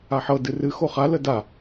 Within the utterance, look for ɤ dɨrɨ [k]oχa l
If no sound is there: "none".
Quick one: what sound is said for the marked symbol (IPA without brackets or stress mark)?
x